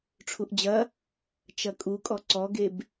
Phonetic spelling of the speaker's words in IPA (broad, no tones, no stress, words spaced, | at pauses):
ʈ͡ʂʰuʔd͡ʑɐ | t͡ʃɐkʼukʼɔ ǀɔɡeb